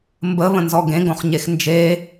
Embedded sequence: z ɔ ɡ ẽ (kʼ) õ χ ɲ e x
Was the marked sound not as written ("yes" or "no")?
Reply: yes